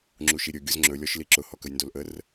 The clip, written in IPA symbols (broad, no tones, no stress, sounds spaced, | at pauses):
ŋ͡ǁ u ʃ i ɾʲ ɵ ɡʲ ʊ z ŋ͡ǁ ɵ lʲ ɔ ʃ l i ǁ ʊ h ɔ k ə j n d o l ʔ ə r